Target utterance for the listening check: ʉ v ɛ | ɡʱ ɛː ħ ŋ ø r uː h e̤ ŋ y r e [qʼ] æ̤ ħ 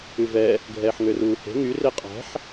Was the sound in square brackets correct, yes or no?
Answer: yes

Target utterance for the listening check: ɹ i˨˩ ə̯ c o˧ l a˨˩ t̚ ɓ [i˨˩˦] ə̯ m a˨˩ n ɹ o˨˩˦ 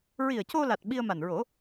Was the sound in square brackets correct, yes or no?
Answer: no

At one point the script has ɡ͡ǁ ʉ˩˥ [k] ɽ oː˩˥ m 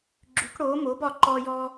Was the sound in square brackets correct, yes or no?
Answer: yes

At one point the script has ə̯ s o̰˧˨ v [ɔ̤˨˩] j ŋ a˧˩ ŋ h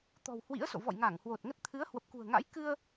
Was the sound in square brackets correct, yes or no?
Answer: no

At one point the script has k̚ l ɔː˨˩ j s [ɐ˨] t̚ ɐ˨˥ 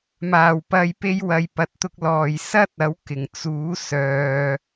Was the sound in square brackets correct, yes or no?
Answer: no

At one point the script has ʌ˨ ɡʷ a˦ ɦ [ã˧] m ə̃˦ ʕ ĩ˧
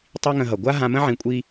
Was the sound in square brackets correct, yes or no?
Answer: yes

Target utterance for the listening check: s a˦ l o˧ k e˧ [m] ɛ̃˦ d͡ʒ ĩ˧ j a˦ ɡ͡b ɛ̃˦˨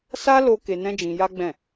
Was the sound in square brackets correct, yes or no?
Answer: no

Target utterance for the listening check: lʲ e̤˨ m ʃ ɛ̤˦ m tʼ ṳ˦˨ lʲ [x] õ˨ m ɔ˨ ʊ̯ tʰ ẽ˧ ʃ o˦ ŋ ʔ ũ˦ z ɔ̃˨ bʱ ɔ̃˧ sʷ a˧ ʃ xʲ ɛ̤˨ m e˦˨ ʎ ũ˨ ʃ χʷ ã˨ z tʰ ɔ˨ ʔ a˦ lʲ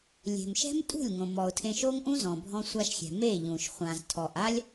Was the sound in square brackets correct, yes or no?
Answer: no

